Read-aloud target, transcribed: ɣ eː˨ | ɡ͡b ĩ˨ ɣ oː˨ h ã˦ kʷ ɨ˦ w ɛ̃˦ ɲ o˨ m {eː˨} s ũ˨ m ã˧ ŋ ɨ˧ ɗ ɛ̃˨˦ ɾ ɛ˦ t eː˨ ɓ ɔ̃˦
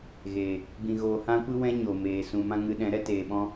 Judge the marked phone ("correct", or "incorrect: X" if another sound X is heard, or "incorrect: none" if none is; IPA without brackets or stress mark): correct